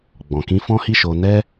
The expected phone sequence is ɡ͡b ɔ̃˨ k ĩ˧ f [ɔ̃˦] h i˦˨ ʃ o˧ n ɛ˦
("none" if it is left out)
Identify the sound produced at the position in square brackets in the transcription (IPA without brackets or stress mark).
ɔ̃˦